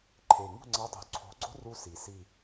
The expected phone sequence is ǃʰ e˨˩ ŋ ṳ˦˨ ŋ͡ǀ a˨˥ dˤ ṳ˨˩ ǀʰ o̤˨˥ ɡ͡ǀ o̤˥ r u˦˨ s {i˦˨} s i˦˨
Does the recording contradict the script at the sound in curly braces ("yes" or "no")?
yes